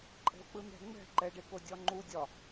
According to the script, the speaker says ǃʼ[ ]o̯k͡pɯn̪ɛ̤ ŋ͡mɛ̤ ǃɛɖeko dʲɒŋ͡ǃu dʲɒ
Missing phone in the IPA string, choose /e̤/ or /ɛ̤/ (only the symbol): ɛ̤